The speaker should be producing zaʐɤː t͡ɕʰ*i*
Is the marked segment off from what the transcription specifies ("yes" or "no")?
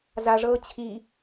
no